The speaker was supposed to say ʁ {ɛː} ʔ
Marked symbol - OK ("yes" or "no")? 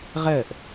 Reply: no